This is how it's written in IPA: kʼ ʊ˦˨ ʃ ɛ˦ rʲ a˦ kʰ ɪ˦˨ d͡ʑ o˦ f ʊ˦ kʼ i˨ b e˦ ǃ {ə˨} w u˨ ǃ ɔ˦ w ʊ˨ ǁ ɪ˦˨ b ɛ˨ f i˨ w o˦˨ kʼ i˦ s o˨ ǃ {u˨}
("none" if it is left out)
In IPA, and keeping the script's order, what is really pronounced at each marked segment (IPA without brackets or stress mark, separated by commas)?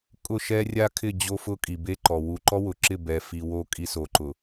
ɔ˨, ʊ˨